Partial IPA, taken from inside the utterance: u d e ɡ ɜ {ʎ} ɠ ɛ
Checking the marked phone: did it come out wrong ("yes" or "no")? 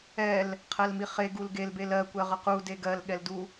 yes